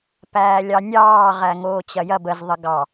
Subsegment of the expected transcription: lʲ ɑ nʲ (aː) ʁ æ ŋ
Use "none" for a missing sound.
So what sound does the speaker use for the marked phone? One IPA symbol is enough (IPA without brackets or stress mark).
ɑː